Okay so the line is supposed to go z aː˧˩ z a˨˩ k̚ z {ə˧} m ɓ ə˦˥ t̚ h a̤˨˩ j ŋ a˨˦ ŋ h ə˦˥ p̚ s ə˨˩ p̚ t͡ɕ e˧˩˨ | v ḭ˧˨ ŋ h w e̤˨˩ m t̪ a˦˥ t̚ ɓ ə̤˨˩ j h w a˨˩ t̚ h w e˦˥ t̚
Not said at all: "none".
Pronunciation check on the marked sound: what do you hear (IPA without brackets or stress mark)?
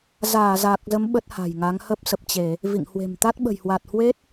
ə˨˦